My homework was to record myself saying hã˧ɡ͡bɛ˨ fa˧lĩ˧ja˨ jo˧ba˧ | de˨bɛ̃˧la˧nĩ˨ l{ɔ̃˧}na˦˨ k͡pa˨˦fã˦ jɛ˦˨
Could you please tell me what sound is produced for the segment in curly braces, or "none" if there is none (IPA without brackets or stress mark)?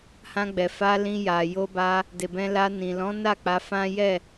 ɔ̃˨˦